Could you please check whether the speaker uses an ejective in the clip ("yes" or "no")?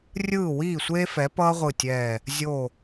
no